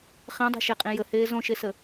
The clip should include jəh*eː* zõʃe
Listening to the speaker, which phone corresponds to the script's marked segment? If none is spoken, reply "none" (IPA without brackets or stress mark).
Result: eː